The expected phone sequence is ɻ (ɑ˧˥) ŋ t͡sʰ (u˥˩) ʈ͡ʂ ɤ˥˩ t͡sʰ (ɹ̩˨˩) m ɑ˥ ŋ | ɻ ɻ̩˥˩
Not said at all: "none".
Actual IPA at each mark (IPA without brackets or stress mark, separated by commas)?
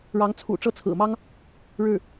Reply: ɑ˧˥, ṵ˨˩, ɹ̩˨˩